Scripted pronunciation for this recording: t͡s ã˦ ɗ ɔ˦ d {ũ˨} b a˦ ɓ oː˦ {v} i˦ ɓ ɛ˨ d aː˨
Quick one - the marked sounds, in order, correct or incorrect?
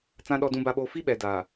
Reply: incorrect: ũ˦, incorrect: f

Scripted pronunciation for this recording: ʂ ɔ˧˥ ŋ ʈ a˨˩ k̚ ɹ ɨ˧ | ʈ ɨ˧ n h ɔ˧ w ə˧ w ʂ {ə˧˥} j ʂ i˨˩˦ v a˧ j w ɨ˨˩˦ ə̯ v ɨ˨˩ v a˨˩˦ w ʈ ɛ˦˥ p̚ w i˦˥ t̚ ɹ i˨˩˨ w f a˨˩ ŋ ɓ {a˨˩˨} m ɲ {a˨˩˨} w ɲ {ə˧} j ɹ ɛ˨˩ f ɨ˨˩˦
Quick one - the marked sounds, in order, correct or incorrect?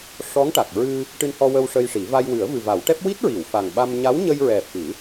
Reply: incorrect: ə˧, incorrect: a˧, incorrect: a˧˥, correct

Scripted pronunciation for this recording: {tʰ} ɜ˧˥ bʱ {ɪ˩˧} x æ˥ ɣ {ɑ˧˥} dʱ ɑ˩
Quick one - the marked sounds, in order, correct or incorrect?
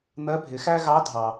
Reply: incorrect: n̪, correct, correct

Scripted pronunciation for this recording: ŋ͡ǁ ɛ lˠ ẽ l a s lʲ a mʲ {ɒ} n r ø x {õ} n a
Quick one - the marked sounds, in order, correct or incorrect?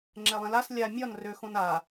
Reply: correct, correct

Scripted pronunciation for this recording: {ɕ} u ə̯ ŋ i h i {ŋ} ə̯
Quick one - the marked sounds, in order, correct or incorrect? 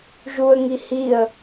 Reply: incorrect: ʒ, incorrect: none

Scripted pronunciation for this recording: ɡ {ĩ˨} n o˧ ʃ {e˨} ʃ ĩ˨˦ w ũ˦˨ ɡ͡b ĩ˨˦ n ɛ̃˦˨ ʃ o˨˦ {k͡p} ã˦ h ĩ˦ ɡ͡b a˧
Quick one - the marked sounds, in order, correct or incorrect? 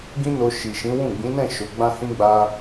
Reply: incorrect: ĩ˦, incorrect: i˨, incorrect: ɡ͡b

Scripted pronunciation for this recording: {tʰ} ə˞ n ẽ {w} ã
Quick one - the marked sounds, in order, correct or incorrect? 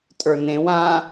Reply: incorrect: tʼ, correct

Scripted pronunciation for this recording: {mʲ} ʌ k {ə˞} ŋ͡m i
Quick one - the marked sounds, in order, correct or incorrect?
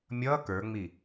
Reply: correct, correct

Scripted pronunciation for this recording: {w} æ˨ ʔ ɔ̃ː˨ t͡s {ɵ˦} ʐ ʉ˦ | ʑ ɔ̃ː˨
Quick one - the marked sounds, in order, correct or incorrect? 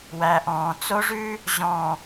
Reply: correct, incorrect: o˦

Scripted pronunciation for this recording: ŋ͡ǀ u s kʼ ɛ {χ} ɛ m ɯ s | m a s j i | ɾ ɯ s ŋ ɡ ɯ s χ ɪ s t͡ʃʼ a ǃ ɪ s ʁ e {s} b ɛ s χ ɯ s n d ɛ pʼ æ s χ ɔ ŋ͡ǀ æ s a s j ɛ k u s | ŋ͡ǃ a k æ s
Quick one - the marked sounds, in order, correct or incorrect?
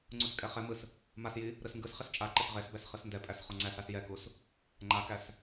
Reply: correct, correct

